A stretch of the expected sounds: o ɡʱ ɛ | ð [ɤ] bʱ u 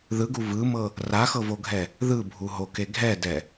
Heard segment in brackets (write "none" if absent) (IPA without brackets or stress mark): ɯ